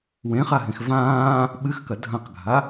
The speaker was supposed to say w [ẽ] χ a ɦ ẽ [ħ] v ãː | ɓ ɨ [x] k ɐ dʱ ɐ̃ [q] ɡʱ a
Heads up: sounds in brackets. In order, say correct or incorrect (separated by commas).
correct, incorrect, correct, correct